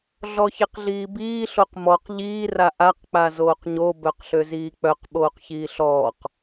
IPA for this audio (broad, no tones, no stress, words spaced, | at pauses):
ɮɔçeqɮiːbiː ɬoqmɔq ʎiː raʔaq k͡pazoːqɲo bœqɬøziːk͡pœq ɓoːqçiːɬɔːq